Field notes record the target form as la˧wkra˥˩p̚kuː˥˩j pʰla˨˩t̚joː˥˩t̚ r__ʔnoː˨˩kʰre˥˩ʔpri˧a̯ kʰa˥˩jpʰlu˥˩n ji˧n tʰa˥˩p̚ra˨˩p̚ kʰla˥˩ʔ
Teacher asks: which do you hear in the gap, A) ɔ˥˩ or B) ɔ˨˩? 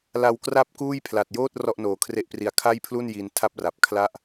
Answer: A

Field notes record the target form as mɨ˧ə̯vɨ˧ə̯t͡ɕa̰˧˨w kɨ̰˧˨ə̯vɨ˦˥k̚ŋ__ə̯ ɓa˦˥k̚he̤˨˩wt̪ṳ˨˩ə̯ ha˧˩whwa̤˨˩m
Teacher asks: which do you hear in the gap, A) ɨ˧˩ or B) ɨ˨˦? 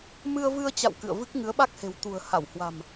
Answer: B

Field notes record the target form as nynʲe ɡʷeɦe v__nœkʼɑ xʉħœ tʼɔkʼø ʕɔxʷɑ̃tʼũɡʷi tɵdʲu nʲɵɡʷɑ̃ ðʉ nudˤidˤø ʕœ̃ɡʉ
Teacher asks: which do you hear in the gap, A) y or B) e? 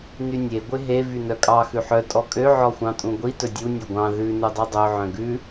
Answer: A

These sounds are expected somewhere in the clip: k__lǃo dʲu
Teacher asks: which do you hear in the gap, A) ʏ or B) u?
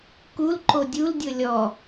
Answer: B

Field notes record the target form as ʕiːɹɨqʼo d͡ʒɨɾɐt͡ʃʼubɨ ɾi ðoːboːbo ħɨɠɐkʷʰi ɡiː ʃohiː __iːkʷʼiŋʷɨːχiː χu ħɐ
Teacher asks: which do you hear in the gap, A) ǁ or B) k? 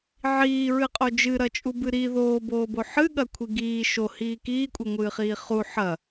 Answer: B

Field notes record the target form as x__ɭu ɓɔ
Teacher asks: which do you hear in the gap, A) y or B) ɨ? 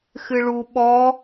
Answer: B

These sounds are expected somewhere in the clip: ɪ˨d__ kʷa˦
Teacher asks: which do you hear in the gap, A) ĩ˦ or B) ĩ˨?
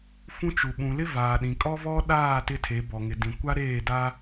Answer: B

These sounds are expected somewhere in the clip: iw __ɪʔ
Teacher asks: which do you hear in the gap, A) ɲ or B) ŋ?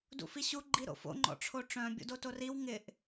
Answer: B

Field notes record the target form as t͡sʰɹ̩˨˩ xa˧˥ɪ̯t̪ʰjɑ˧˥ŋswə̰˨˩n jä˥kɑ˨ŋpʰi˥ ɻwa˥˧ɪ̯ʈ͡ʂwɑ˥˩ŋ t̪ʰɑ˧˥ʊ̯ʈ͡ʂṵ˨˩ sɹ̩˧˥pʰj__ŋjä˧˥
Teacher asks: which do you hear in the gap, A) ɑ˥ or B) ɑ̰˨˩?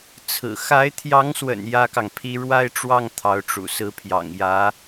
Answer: B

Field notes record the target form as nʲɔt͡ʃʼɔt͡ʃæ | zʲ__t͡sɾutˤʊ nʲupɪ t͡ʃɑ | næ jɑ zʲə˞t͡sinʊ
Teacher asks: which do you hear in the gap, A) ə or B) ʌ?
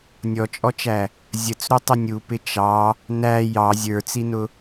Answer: A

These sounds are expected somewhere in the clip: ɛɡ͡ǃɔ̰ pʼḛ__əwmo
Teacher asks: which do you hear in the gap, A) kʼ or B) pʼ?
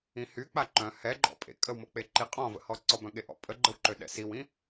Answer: A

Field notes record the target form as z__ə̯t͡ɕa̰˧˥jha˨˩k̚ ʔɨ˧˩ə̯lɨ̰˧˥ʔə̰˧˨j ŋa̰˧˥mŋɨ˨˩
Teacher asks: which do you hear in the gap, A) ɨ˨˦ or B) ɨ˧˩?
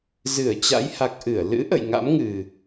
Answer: B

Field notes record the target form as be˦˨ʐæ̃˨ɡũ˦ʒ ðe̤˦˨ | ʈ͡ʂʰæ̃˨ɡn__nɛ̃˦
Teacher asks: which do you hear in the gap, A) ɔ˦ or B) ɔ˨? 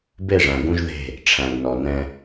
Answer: B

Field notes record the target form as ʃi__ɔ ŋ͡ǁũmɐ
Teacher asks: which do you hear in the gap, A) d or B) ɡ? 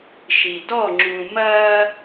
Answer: A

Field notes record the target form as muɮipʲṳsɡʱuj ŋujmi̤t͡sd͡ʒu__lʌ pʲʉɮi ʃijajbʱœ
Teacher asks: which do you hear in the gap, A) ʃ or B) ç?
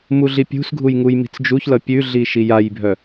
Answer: B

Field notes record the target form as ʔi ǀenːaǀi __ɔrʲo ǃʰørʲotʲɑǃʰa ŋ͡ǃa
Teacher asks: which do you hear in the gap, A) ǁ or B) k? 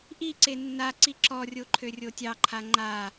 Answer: A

